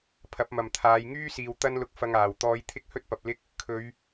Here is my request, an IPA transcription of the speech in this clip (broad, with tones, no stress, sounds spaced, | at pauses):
pʰ ɐ˨˥ p̚ m ɐ˨ m t̪ʰ aː˨˧ j ŋ yː˥ s iː˨ w t̪ ɐ˥ n l ʊ˧ k̚ f ɐ˧ ŋ aː˨˩ w t̪ ɔː˧ j t̪ʰ ɪ˥ k̚ h ɵ˥ t̚ p ɐ˨ p̚ l ɪ˥ k̚ | kʰ ɵ˨˧ ɥ